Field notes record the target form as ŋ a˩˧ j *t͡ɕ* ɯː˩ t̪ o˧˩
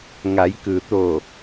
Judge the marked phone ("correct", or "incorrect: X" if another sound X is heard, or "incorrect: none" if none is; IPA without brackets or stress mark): incorrect: k